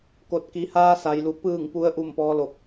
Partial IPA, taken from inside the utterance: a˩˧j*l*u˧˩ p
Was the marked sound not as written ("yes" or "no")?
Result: no